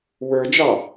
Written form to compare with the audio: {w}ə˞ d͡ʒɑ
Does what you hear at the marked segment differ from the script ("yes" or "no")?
no